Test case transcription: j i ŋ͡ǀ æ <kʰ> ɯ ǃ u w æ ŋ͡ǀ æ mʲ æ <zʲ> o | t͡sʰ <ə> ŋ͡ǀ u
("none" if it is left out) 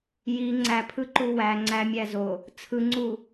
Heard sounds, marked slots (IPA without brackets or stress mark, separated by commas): pʰ, z, ɯ